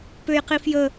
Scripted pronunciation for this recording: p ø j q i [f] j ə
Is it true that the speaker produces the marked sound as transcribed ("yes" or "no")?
yes